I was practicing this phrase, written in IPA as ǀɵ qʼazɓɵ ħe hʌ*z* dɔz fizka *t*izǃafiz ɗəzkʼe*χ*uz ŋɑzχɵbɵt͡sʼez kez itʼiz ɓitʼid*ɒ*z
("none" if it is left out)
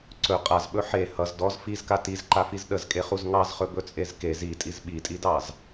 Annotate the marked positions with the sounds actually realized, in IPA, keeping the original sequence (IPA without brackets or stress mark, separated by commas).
z, t, χ, ɑ